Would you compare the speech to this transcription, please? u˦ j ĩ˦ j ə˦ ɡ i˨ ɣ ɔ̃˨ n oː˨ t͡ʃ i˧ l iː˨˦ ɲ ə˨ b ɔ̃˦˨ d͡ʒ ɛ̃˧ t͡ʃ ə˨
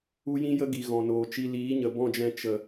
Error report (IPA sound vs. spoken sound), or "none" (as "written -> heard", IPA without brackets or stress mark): none